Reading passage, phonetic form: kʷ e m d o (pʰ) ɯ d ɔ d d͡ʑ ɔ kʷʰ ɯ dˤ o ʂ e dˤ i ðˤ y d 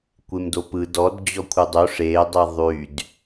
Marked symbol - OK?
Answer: no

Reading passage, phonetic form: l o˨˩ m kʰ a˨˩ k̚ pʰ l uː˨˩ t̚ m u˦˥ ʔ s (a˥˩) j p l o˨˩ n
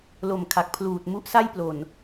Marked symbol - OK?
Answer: yes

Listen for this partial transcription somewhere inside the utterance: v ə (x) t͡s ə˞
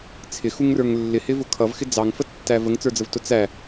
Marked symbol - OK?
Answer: no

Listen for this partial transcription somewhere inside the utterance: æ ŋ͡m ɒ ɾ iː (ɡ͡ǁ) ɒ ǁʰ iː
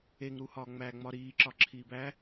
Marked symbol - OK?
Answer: no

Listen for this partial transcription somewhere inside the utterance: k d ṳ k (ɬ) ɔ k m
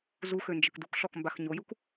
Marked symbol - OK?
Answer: yes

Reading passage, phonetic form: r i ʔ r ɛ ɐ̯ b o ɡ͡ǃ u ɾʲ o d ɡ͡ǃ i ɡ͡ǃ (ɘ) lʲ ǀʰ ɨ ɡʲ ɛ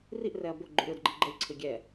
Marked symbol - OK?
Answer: yes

